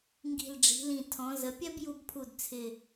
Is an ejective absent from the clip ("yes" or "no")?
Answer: yes